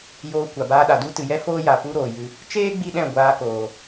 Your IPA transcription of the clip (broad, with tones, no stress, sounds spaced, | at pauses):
j oː˧ kʷ a˨ b aː˧ ɗ a˨ d u˦ t ɨ˨ j ɛ˦ f oː˦ j a˨ p u˦ ɾ oː˨ j ɨ˧ | t͡ʃ eː˦ ɡ͡b i˦ ɗ ɛ̃˦˨ ɡʷ aː˧ k oː˨